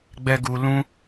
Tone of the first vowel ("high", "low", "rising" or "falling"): low